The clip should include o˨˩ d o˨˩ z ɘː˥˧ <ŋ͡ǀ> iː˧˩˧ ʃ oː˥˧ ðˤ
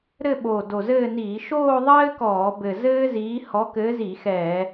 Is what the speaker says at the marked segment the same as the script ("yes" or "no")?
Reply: no